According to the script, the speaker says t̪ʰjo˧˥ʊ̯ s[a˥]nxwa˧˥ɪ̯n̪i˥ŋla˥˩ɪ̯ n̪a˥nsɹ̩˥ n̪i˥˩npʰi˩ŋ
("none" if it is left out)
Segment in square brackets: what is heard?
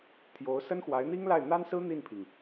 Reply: ə˥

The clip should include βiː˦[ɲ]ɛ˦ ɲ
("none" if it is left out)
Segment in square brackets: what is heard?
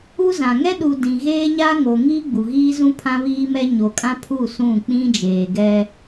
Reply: m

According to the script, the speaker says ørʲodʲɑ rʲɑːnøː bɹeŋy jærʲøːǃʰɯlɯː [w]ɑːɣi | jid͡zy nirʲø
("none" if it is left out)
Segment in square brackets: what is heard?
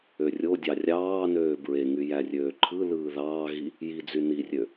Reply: ð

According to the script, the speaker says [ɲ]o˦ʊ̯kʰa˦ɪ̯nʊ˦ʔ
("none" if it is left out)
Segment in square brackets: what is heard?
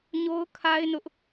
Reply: ɲ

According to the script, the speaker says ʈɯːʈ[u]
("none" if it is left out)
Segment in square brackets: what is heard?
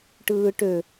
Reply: ø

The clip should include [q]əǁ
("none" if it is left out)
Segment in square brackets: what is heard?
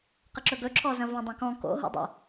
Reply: q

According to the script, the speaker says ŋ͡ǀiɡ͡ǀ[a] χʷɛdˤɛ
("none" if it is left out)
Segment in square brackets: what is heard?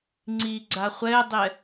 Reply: a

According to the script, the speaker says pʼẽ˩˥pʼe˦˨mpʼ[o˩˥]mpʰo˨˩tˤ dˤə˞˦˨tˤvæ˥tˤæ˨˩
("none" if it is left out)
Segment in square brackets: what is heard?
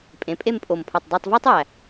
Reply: o˨˩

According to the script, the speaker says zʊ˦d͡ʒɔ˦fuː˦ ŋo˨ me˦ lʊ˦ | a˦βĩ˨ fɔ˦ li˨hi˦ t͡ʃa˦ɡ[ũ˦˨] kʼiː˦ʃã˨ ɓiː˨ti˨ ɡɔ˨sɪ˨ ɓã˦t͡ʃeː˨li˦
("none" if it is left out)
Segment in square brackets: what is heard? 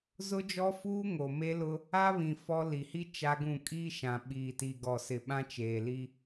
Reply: ũ˦˨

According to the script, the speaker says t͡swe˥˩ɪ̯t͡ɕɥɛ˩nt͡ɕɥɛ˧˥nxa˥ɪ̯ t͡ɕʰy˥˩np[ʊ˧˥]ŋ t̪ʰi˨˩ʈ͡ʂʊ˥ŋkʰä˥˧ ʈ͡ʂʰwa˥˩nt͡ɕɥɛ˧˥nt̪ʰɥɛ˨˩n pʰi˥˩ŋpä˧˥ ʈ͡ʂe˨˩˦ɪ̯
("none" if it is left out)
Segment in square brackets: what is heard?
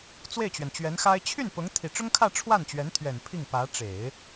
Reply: ʊ˧˥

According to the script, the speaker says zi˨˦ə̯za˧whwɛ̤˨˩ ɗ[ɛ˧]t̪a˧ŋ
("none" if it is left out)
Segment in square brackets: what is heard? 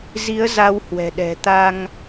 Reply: ɛ̤˨˩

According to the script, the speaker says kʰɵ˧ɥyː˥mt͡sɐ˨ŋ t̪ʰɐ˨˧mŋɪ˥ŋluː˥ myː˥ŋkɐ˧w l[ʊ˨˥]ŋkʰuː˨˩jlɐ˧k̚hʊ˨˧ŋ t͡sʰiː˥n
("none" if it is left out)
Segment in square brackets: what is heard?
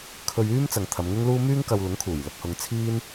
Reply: ʊ˨˥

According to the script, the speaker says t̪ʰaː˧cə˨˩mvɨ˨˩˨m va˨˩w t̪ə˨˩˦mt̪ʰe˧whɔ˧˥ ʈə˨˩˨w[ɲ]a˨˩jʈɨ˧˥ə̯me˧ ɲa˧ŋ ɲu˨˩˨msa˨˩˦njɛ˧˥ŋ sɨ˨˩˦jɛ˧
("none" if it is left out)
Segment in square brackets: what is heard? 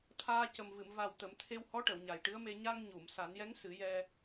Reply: ɲ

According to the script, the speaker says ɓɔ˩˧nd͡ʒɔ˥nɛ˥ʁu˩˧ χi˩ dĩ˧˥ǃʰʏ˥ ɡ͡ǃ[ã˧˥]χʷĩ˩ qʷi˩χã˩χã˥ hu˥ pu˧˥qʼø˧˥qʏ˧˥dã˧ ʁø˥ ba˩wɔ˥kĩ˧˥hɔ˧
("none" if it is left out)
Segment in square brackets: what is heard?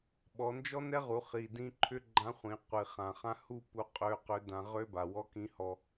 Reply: ã˧˥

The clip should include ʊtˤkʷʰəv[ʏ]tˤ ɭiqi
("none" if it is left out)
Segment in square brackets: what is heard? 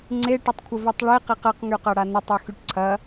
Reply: y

